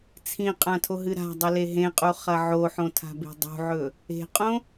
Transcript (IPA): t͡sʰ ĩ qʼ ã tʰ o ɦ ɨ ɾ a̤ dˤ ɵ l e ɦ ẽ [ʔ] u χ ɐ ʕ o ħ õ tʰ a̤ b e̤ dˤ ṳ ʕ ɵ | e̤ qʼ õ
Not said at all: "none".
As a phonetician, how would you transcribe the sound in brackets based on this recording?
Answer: qʼ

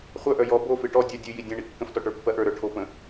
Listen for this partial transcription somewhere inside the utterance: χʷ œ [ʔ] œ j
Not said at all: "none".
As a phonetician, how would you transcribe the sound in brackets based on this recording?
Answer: ʔ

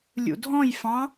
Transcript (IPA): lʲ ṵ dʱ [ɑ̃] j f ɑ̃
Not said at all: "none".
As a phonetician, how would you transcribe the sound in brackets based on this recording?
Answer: ɔ̃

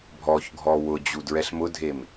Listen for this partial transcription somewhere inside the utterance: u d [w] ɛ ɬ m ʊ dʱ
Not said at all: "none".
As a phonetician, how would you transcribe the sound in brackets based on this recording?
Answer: ɹ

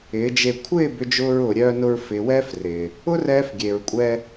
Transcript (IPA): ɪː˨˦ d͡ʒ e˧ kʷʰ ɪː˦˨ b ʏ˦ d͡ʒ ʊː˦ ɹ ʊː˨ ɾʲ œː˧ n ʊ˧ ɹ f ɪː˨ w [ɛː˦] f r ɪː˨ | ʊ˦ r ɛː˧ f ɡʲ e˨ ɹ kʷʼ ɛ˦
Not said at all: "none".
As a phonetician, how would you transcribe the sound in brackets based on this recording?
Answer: ɛː˦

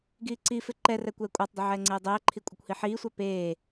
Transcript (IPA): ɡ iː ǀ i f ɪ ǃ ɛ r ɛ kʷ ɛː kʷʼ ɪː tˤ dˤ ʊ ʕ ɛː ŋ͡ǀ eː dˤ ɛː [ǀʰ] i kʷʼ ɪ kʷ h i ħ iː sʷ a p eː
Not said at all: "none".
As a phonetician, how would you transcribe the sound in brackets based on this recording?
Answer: ǃʰ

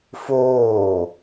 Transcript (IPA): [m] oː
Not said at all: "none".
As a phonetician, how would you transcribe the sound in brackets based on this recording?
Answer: f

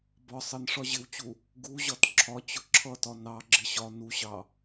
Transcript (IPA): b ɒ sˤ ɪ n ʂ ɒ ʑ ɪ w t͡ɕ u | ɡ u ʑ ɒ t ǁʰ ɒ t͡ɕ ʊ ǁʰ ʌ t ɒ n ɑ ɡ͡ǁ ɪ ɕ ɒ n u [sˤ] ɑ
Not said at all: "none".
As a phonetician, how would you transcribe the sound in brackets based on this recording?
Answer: ɕ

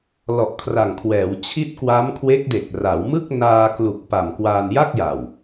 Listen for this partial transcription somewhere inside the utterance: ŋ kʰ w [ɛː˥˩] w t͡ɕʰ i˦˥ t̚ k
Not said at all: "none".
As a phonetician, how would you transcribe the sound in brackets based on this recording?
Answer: ɛː˩˦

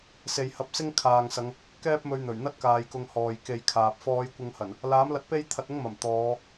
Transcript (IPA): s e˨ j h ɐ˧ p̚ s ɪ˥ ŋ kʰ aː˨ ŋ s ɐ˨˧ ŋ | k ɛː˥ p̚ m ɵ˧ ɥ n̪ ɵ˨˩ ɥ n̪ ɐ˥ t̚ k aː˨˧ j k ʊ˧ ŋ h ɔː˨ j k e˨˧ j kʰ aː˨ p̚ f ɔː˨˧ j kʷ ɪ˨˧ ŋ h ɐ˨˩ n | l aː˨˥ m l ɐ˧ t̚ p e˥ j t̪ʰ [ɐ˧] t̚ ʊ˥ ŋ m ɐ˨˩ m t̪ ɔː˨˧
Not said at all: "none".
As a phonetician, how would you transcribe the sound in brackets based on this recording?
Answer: ɐ˧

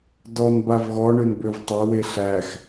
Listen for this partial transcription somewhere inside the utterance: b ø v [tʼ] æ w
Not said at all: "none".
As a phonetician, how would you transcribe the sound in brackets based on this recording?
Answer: tˤ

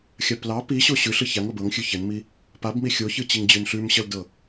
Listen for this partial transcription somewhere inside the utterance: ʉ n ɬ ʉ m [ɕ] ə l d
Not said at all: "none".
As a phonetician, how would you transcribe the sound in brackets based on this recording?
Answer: ɕ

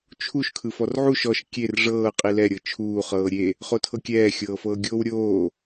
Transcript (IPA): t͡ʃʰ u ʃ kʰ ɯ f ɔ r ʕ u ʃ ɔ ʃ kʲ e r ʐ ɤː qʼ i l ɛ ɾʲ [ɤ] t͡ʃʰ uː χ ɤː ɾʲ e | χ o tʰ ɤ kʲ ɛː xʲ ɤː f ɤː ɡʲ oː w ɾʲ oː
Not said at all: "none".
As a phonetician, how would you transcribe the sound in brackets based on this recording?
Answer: ɤ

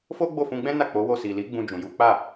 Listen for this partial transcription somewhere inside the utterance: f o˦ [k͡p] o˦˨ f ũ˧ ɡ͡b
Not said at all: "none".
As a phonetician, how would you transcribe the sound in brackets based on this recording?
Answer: ɡ͡b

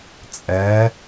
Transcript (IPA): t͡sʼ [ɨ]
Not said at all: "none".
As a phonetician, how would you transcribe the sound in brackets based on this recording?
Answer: ɛ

